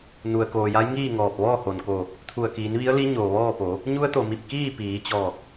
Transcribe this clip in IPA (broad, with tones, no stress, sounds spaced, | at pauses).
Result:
n u˩ ə̯ k oː˩ j a˧˥ j ŋ iː˥˨ ŋ ɔː˧˩ p̚ ʋ ɔː˥˨ h o˩ n k o˧˩ | t̪ʰ u˧˩ ə̯ k iː˩˧ n ʋ i˧˥ ə̯ l i˧˥ ɲ oː˩ ʋ ɔː˥˨ p o˩˧ | ɲ u˧˥ ə̯ t̪ o˩ m i˧˩ p̚ k iː˥˨ p iː˩˧ t͡ɕ ɔː˧˩ k̚